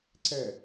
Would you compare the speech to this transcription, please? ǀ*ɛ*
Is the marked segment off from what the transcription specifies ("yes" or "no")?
no